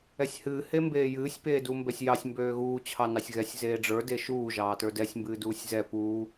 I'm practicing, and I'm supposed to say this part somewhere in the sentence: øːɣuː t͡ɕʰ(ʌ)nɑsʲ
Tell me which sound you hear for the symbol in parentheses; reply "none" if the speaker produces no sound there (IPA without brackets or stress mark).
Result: ɑ